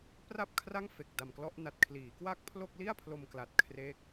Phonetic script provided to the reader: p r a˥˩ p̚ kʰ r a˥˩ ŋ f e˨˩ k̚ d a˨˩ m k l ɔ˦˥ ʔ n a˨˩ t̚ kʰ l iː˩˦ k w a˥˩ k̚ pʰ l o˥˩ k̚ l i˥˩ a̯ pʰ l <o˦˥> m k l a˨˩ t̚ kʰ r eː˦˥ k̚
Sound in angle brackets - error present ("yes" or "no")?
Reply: yes